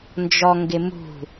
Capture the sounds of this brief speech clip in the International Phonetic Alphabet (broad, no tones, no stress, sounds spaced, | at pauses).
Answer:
n d͡ʒ ɔ ŋ ɡ ɪ m ṳ